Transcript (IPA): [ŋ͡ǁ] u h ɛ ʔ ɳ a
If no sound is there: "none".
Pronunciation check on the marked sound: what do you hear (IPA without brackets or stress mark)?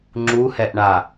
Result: ŋ͡ǁ